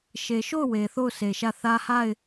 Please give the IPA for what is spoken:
ʃ e˨ ʃ o˦˨ ʊ̯ w e˨ θ o˦˨ ʊ̯ sʰ e˨ ʃ ä˦˨ θ ä˦ h a˦˨ ɪ̯

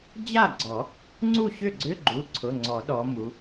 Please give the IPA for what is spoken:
d͡ʑ a˥˩ ɡ͡ǀ ɔ˨˩˦ | ŋ͡ǀ u˥˩ ɕ ʏ˥˩ ɡ͡ǀ ʏ˧˥˧ ɡ͡ǃ u˩˧˩ ǀʰ ʊ˩˧˩ ŋ͡ǀ ɔ˨˩˦ ɗ ɔ˧˥ m u˧˥

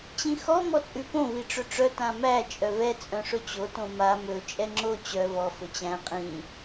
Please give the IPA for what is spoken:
t͡ɕ ĩ x ɔ m ɔ t͡sʼ ʉ p õ v i ʈ͡ʂ ɵ ʈ͡ʂ œ t ã m æ t͡ʃʼ œ v ɛ t͡sʼ œ̃ ʂ ɵ t͡ɕ o t õ m a m ɵ t͡ʃʼ ɛ ŋ͡ǁ o t͡ɕ œ v ɔ f ɵ t͡ɕ æ̃ qʼ ĩ

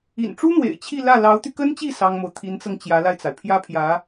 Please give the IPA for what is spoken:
ḭ˨˩ n ʈ͡ʂ u˥ n̪ w ḛ˨˩ ɪ̯ t͡ɕʰ i˥˧ l ä˥˩ l ɑ˧˥ ʊ̯ t̪ y˧ k ə˥ n t͡ɕ i˥˩ s ɑ˥ ŋ m o˨ ʊ̯ t̪ʰ i˧˥ n t͡s ɤ˧ ŋ t͡ɕ j ä˧˥ l a˧ ɪ̯ t͡s a˩ ɪ̯ pʰ j ä˥ pʰ j ä˧˥

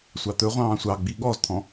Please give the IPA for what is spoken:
sʷ ɑ t̪ ɵ ʁʷ ɑ̃ː sʷ ɑ ɡ͡b i ɠ ɔ z t̪ʰ ɔ̃

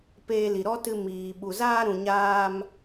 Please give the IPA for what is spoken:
p eː˧ l i˨ ɾ ɔ˦ t ɨ˧ m iː˨ ɓ u˨ z aː˧ ɾ ũ˨ ɲ aː˧ m

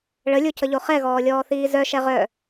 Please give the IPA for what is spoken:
ɭ ə lʲ o cʰ ə ʎ o χ ɛ ɣ ɔː lʲ ɔː θ iː z œ ʃ ɛ ʁ œ

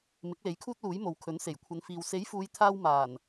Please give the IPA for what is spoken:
m ɪ˨˥ k̚ l e˨˥ j kʰ uː˥ t̚ l uː˨˥ j m o˨ w kʰ ɵ˨˥ n s e˨˩ j kʷʰ ɐ˨˧ n f iː˨ w s e˨˥ j f uː˨˧ j t̪ʰ aː˧ w m aː˨˩ n

